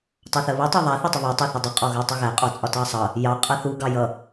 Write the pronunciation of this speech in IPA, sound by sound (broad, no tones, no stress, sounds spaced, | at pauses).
tˤ ɑ θ ɜ β u tˤ ɜ ðˤ æ θ ɔ tˤ ə β ɜ tˤ ɑ θ ʌ dˤ u qʼ ɔ ɣ æ tˤ ə ɣ æ qʼ ɔ t͡sʼ ɒ t ɑ sˤ ʌ | j ɑ qʼ ʌ θ u ɡ ɑ j ʌ